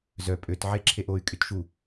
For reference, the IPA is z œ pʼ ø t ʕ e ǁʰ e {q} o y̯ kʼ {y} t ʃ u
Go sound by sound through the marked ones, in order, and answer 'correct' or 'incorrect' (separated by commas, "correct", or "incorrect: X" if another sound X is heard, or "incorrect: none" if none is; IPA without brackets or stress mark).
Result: incorrect: ʔ, correct